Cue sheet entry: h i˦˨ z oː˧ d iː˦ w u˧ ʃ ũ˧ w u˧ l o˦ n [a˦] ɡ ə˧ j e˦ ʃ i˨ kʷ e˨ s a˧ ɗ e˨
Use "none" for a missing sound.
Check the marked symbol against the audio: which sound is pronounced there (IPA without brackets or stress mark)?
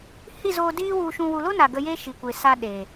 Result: a˨